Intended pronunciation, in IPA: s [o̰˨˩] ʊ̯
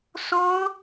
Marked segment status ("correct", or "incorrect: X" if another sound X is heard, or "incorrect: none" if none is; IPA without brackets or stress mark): incorrect: o˥